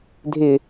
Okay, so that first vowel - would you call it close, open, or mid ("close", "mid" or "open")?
close